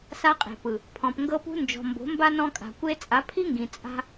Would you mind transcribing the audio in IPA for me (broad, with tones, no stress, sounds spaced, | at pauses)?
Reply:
s a˧ qʼ e̤˨ p ɯ˨ | pʰ ɔ̃˨ p ŋ ɡ ɤ˦ p ṳ˦ n d͡ʒ ɔ̤˨ m b o̤˨˦ m b a˦ n ɔ̃˧ kʼ a̤˨ kʷ e˧ t͡sʼ a˨˦ pʰ i˦ ŋ ɡ ĩ˨ t͡sʼ a̤˦